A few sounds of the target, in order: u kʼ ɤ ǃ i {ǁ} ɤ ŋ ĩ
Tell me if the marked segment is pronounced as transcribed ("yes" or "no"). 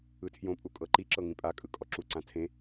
yes